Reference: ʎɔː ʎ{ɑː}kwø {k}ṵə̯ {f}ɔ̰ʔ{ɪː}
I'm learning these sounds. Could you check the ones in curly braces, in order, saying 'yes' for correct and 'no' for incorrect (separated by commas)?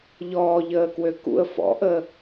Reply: no, yes, yes, no